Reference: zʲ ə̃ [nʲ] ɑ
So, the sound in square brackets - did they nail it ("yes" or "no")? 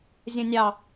yes